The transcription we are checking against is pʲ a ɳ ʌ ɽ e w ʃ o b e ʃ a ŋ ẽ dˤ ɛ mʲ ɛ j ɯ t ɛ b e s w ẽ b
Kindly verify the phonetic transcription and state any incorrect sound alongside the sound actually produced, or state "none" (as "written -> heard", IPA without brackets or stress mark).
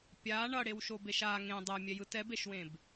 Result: s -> ʃ